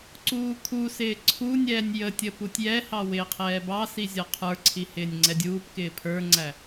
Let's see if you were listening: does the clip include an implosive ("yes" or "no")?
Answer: no